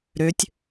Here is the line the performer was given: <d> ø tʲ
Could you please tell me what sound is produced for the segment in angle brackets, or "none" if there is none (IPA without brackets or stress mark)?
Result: ɾ